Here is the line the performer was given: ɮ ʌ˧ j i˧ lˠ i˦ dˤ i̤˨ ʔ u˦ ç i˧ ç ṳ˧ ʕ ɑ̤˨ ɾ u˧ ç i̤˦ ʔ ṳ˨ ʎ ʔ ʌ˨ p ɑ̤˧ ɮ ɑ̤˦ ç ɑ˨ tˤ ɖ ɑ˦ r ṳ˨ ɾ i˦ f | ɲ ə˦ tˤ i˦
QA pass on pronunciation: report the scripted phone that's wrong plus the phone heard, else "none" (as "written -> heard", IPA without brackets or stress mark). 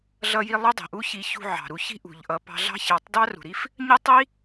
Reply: ɖ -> d